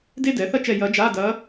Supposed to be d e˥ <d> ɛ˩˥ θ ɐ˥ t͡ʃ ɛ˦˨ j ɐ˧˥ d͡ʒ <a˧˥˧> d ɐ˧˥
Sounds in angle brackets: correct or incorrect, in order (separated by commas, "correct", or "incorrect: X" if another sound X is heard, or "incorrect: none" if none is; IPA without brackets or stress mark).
correct, correct